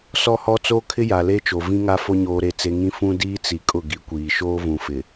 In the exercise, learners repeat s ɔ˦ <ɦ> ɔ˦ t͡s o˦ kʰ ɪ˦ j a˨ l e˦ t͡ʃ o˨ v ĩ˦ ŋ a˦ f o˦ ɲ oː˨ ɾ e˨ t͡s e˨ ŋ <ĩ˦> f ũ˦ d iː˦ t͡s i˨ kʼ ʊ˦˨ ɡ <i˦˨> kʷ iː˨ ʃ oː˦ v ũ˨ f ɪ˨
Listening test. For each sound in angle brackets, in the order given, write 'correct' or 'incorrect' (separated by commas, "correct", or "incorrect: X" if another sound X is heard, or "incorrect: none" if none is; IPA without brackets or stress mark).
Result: incorrect: h, correct, incorrect: i˨˦